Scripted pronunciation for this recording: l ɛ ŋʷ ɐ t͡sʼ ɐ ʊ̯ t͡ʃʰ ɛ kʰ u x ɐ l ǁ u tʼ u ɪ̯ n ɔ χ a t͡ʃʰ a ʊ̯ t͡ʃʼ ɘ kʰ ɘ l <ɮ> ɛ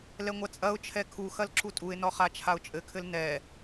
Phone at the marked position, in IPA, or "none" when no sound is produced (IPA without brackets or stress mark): n